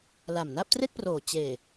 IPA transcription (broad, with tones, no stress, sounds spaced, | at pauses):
l a˨˩ m n a˥˩ p̚ t r e˥˩ k̚ p r oː˨˩ t͡ɕ eː˨˩